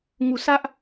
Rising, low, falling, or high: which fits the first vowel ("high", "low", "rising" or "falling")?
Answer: low